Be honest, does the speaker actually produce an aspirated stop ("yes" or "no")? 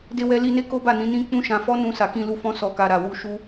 no